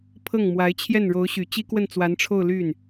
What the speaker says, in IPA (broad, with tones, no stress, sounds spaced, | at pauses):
pʰ ɤ˥˩ ŋ m w a˧˥ ɪ̯ t͡ɕʰ j ɛ˥˩ n ɻ o˧˥ ʊ̯ ɕ y˨˩ t͡ɕ i˥ k w ə˥˩ n t͡s w a˧˥ n ʈ͡ʂʰ o˥˧ ʊ̯ l y˥˩ n